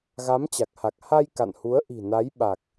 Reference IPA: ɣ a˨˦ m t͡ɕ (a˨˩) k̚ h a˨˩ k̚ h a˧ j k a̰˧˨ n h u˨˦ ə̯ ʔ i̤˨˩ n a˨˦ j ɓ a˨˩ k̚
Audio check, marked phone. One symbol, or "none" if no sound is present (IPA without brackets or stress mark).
a˨˩